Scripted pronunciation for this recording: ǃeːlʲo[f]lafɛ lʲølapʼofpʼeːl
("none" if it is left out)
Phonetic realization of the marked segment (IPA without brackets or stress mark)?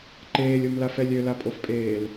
m